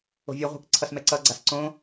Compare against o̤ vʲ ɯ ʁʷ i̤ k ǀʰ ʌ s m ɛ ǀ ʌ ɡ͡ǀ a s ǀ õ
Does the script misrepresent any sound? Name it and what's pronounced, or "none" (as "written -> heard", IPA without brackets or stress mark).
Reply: none